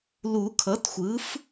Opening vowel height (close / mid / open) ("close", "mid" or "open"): close